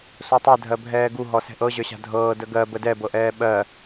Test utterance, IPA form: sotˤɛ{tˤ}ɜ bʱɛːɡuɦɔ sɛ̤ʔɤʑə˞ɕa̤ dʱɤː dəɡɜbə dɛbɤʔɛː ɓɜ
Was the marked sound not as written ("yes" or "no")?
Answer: yes